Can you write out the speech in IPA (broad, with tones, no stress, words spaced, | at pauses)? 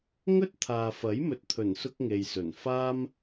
ŋɵ˥t̚t̪ʰaː˨fɐ˨˥jmɵ˨˥t̚ t̪ʰɵ˨˩nsʊ˧k̚ ŋe˨j sɵ˨˩nfaː˥m